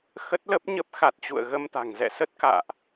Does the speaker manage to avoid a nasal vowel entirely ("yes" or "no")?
yes